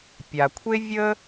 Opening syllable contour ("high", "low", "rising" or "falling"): low